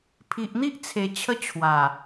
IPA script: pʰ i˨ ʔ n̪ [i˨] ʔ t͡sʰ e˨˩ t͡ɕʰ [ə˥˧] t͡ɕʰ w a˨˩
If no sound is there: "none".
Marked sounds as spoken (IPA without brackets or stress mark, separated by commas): i˦, ə˧